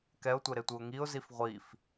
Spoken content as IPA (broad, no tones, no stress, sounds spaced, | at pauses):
k ɛ ʊ̯ tʷ e ɾ e tʷ ɯ ʊ̯ ŋ i ʊ̯ z i f ʁʷ i f